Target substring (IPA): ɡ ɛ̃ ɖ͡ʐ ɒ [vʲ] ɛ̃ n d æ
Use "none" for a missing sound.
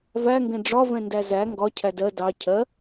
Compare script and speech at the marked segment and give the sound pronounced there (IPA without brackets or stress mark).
v